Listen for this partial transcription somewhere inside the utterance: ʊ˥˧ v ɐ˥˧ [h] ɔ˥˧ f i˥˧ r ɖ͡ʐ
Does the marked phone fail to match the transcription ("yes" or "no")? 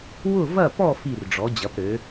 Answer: yes